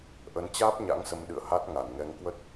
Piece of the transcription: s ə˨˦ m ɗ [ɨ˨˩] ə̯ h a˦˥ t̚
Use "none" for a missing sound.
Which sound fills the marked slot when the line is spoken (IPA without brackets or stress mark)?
ɨ̰˧˨